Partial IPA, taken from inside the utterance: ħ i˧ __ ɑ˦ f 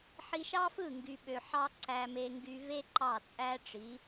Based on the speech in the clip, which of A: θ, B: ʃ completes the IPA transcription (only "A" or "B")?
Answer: B